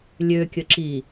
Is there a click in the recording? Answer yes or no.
yes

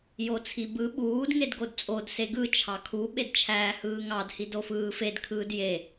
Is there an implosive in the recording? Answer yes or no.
yes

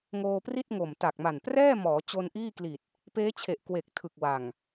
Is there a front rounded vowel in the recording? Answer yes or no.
no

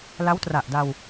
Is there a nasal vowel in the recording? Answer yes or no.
no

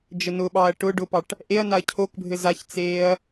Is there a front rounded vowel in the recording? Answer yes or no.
no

